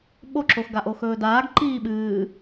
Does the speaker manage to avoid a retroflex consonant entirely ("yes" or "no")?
yes